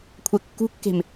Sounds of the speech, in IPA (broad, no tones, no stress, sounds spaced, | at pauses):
kʷʰ ɛ kː ṳ kː e̤ m